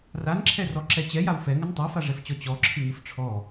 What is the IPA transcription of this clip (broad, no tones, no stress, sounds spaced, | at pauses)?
r a n ǁʰ ɛ r ɔ ǁ ɛ t͡ɕ ɛ j a w f ɛ ŋ ə n tˤ a f a ʐ ɛ f t͡ɕ ɔ t͡ɕ ɔ ǁʰ ɨ ŋ ɨ f ʈ͡ʂʰ ɔ